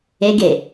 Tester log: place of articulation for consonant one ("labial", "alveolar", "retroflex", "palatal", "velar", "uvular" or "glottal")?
velar